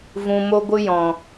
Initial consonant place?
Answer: labial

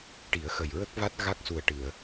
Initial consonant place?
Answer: retroflex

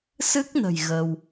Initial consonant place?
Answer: alveolar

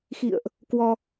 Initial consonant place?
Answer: velar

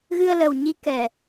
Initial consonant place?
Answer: velar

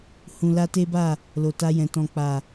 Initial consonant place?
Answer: glottal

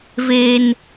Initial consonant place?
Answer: labial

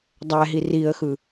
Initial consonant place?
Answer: alveolar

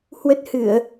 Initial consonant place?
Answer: glottal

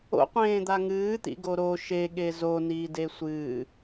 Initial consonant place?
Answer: uvular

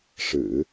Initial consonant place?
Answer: retroflex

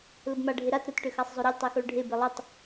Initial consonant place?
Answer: alveolar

